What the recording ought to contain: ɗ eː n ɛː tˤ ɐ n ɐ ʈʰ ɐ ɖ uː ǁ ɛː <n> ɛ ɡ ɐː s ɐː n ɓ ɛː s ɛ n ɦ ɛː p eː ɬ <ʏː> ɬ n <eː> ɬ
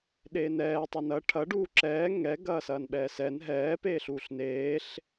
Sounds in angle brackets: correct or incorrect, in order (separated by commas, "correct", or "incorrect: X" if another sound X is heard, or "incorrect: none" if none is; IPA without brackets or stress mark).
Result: incorrect: ŋ, incorrect: uː, correct